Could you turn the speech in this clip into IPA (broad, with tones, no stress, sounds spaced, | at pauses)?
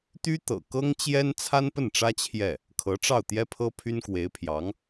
t̪ y˥ t̪ ɤ̰˨˩ k ɤ˥ ŋ t͡ɕ j ɛ˥ n t͡sʰ a˥ n p ə˥˩ n ʈ͡ʂ ä˥ t͡ɕʰ j ɛ˥˩ | kʰ ɤ˧˥ ʈ͡ʂ ɑ˥˩ ʊ̯ t̪ j ɛ˥ pʰ ɤ˥ pʰ y˥ n k w e˧˥ ɪ̯ pʰ j ɑ˧˥ ŋ